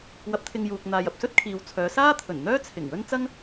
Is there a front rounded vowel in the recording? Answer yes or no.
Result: yes